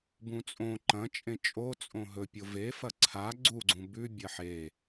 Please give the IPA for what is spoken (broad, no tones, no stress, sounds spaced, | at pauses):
b ũ t͡sʼ õ ǃ ɐ̃ t͡ʃʼ ẽ t͡ʃʼ o t͡sʼ õ ɦ ɵ pʲ o v e f ɐ ǀʰ a ɡ͡ǀ u ɡ͡ǀ ũ b ʉ bʲ ɐ ħ e